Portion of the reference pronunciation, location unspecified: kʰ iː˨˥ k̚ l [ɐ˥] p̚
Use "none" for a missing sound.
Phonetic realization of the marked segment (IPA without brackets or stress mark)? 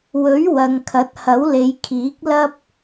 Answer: ɐ˥